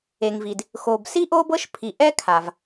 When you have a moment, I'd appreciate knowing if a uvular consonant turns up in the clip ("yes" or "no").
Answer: no